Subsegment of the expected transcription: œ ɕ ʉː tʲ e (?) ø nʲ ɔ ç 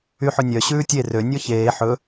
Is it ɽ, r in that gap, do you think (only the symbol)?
r